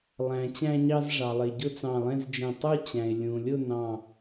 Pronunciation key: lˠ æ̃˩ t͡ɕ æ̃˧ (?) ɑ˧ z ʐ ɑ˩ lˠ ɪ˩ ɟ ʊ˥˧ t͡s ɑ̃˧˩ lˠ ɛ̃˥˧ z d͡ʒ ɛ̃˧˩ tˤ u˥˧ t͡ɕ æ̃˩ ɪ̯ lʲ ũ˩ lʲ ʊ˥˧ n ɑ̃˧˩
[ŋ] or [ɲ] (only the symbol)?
ɲ